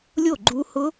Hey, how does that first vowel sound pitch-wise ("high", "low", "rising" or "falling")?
falling